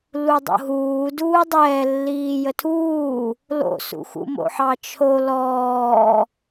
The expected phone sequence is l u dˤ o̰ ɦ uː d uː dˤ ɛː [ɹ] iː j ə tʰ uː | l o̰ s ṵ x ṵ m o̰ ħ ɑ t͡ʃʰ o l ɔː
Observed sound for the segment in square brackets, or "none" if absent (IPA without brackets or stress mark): lː